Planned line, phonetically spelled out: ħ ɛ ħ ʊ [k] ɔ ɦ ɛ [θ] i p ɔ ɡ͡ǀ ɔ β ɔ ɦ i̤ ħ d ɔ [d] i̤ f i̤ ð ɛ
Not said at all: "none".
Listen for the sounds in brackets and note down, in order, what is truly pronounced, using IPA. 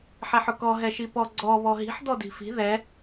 k, ʃ, d

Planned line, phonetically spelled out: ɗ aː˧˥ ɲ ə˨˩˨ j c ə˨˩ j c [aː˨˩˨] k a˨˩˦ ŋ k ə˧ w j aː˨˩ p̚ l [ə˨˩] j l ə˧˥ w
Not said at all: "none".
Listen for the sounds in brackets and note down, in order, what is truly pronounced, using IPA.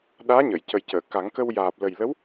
əː˨˩˨, ə˨˩

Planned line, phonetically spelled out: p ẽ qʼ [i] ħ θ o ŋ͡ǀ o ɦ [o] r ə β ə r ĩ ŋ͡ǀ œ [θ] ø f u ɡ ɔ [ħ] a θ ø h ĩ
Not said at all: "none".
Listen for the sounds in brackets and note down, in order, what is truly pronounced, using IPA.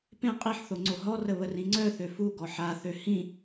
i, ɔ, θ, ħ

